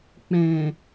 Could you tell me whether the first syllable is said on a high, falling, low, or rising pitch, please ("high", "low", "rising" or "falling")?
low